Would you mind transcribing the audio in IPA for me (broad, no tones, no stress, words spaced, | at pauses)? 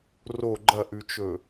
ro ɡ͡ǃɐʔʉt͡ʃɵ